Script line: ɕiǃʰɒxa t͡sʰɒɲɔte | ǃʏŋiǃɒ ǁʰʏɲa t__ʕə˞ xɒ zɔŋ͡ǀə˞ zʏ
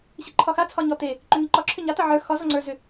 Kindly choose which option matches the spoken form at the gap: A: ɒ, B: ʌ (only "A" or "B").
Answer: B